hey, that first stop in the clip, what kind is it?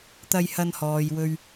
plain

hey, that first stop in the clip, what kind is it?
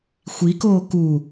plain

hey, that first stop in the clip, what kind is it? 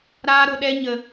implosive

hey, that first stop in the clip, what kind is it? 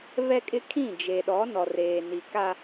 ejective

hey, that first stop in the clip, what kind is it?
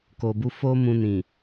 plain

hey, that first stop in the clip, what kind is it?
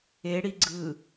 click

